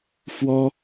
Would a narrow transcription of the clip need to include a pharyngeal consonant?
no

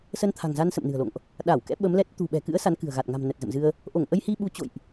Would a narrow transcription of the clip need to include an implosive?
yes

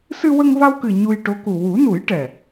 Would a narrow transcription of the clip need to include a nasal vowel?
no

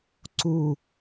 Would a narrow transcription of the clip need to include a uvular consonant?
no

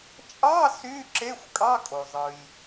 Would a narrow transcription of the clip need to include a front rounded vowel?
yes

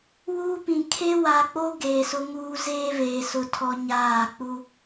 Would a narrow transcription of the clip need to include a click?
no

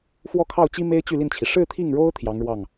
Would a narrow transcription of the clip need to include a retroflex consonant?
yes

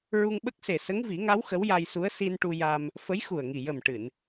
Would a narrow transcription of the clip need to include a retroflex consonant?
yes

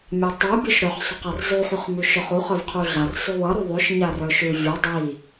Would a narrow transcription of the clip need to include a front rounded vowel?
yes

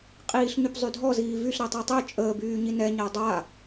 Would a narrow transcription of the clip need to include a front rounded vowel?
yes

